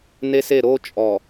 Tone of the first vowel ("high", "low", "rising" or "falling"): high